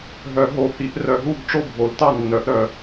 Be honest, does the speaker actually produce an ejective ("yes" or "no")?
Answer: no